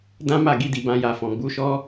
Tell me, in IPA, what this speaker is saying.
d ã˦ m a˦˨ ɡ i˧ d i˨ b ã˧ j a˨ f ɔ̃˨ ɡ͡b u˨˦ ʃ ɔ˦

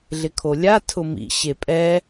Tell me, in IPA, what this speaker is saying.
ɮ ɪ kʰ o lʲ a tʰ ʊ m ḭ ɕ e pʼ ɛ

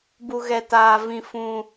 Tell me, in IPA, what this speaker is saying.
b u˧ ɣ ɛ˧ t aː˧ v ĩ˧ f ũ˧

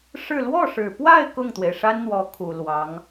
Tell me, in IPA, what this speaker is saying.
ʂ ɻ̩˥˧ l w ɔ˥˩ ʂ ɻ̩˨˩ p w a˥˧ ɪ̯ k ʊ˥˩ ŋ t̪ w e˩ ɪ̯ ʂ a˥ n n̪ w ɔ˧˥ kʰ u˨˩ l w ɑ˧˥ ŋ

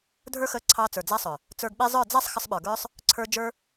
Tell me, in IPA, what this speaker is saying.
dʱ ə˞˦ x ə˧ ǀʰ ɑ˧ t͡s ə˞˨ d͡z a˧ sˤ œ˨ | t͡s ə˞˧ ɡ ɓ e˦ zˤ ə˞˦˨ d͡z a˦ sˤ x ə˧ sˤ ɓ ə˞˨ ɡ ə˞˦ sˤ | ǀʰ ə˞˦ d͡ʒ ə˞˦

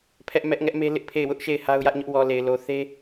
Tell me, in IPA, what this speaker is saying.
pʰ ɛ˦ ʔ m ɛ˦ ʔ ŋ ɛ˦ ʔ m e˦ l ɪ˦ ʔ pʰ e˦˨ ɪ̯ w ʊ˦ ʔ ʃ e˦˨ ɪ̯ h a˦ ʊ̯ j ä˦ ʔ ɲ ʊ˦ ʔ w ɔ˨ l e˨ ɪ̯ l o˨ θ e˦

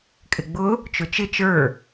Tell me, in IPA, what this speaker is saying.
kʼ ɪ ɡ͡b ʊ | t͡ʃ ʊ t͡ʃ ɪ t͡ʃ ə˞

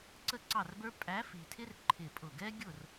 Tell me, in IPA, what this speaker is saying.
ǀ ə˥˨ ǀ ɑ˥˨ r b ə˞˥ pʼ æ˧˥ f i˨ tʰ ɪ˥ r ǃʰ ɪ˥˨ pʼ ʊ˥˨ ɡ ɛ˥ ɡʲ ʊ˥˨ r

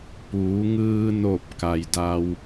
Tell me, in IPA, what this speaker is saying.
p uː˩˧ ŋ ɯː˧ n o˧˩ p̚ k a˩ j d a˧ w

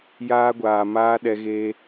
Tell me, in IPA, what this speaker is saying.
j aː˧ ɡʷ aː˨ m aː˧ ɗ ɛ˧ ɣ eː˧

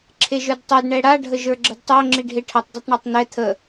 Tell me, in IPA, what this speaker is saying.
ǁʰ e ʒ ə˞ d tˤ o d ɳ ɛ ɽ a ɖʱ ə ʒ ə˞ ɡ͡ǁ ə d tˤ o ŋ͡ǁ i ɖʱ e ʈʰ ə tˤ d ɛ tˤ ɳ a tˤ n̪ ɛ t̪ʰ ə

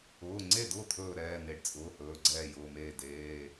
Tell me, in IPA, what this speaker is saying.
ʊː˩˧˩ ŋ͡ǀ e˥˩ d ʊː˥˩ t̪ʰ ɵː˥˩ ɾ ɛː˩˧˩ n̪ e˩˧˩ ɖ t͡sʼ ʊː˩˧˩ h ɵː˩˧˩ ɡ͡ǀ ɛː˥˩ j ʊː˩˧˩ m eː˥˩ d eː˩˧˩

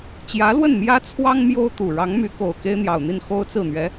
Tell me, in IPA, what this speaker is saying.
t͡ɕ j ä˧˥ l w ə˥˩ n m j ä˥ t͡sʰ w ɑ˥ ŋ m j o˥ ʊ̯ t̪ u˨˩ ɻ ɑ˧˥ ŋ m y˧˥ k o˨˩ ʊ̯ k e˥ ɪ̯ n̪ j ɑ˨˩ ʊ̯ n̪ i˥˩ n x o˥ ʊ̯ t͡s ɹ̩˥˩ n̪ ɥ ɛ˧˥

